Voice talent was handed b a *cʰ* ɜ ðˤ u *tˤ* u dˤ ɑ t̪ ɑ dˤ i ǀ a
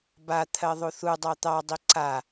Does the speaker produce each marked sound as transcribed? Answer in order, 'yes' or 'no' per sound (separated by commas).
no, no